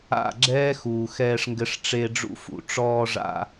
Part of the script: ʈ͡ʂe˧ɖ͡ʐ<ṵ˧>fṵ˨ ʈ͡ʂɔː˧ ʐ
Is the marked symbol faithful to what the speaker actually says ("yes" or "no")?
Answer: yes